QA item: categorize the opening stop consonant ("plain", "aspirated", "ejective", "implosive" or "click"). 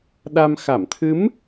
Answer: implosive